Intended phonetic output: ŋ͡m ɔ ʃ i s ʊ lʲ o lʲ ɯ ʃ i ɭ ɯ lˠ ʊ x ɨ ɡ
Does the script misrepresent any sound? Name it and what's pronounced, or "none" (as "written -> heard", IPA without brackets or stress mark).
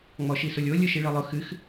ɡ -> x